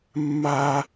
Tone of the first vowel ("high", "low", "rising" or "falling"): high